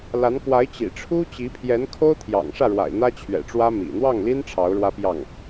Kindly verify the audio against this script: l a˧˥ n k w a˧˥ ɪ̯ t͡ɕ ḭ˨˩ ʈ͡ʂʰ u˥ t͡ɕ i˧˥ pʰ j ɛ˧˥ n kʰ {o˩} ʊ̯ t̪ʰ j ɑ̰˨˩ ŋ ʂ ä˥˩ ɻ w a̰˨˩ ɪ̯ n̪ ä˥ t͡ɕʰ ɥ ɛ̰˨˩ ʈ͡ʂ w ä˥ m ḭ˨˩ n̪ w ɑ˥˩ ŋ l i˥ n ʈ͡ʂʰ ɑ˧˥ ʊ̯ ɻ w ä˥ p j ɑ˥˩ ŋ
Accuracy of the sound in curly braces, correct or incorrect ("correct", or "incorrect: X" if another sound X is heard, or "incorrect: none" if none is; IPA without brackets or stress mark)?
incorrect: o˥